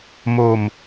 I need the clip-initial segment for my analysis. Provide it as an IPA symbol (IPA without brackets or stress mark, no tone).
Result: m